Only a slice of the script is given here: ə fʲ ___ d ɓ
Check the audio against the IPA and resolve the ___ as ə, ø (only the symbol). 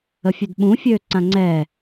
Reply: ø